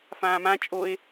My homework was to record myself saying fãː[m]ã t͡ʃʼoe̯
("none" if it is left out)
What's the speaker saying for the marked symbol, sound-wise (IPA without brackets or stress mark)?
m